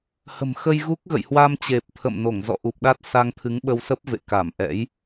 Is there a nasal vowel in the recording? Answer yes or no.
no